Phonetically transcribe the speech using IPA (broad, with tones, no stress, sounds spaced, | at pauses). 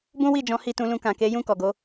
b ũ˦ w i˦˨ d͡ʒ ɔ̃˨˦ h i˦˨ t ũ˧ l ũ˧ k ã˨ k e˨˦ j ũ˦˨ k ɔ˨ ɡ o˨˦